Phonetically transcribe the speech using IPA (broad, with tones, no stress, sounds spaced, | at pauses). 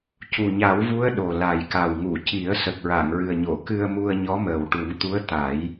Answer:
c u˨˩ ɲ a˨˩˦ w v u˧˥ ə̯ ɗ o˨˩ l a˨˩ j k a˨˩ w ŋ u˨˩˨ c i˨˩˦ ə̯ s ə˨˩ k̚ ɹ a˨˩˨ ŋ ɹ ɨ˨˩ ə̯ ɲ o˨˩˨ k ɨ˧ ə̯ m u˧ ə̯ ɲ ɔ˧˥ m əː˨˩ w ʈ u˨˩˦ ŋ t̪ u˧˥ ə̯ t̪ a˨˩˦ j